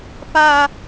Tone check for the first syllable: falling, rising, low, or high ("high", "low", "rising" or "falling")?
high